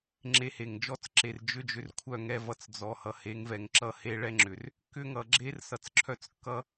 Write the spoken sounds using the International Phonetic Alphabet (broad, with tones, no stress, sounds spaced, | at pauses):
ŋ͡ǁ e˧ h e˨ ŋ d͡ʒ ɔ˦ t͡s ǁ e˨ r d͡ʒ ʏ˦ d͡ʒ ʏ˧ r kʷʰ œ˦˨ ŋ ɛ˧ v ʌ˧ t͡s d͡z ɔ˨ h ʌ˨ h e˨˦ ŋ v ɛ˨ ŋ ǁ ʌ˧ h e˧ ɭ ɛ˦ ŋ͡ǁ ʏ˨ r | k ʏ˦ ŋ ʌ˨ ɡ͡ǁ e˦ r s ʌ˧ t͡s ǁʰ œ˦ t͡s kː ʌ˦